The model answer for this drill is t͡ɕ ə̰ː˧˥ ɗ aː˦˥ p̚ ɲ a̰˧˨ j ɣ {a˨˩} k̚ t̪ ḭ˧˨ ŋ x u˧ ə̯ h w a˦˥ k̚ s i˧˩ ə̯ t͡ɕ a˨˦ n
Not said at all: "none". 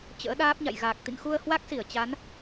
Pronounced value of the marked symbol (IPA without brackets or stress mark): aː˨˩